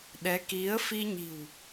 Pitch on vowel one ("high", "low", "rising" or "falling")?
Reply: rising